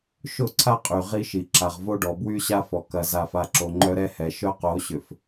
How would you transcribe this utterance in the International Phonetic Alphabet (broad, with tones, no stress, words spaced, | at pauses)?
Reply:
ʃʊ˦˨ǀʰa˦qʼy˨ ʁi˦ʃi˨ ǁa˨ʁvo˦ɖɔ˨ bwy˦ ɕa˦fɔ˨ kɐ˨ za˨fa˨ǁo˨ ŋ͡ǃœ˦ɾɛ˦hɛ˨ ʃœ˦qo˨˦ɕʏ˨f